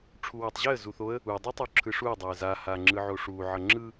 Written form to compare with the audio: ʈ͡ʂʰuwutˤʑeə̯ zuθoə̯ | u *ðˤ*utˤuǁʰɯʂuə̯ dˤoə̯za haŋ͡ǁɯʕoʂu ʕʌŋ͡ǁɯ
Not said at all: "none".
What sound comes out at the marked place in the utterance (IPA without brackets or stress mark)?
dˤ